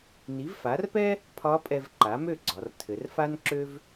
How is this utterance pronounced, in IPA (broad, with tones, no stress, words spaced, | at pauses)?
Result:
ni˩˥vfa˩˥rpɛ˥ | pʰɒ˧˥pʼɛ˧v ǃa˩˥mø˥˩ɡ͡ǀɒ˩˧r tʰɘ˩˧rfa˥nǁø˥v